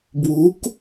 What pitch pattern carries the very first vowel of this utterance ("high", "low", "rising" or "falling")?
rising